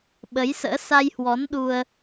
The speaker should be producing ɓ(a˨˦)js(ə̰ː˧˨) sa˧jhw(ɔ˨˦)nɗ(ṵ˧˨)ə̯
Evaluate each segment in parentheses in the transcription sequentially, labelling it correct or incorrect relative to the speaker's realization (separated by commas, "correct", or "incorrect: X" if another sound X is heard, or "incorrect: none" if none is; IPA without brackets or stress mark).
incorrect: ə˨˦, incorrect: ə̰ː˧˥, correct, incorrect: u˧